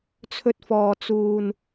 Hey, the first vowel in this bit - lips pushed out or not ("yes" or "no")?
yes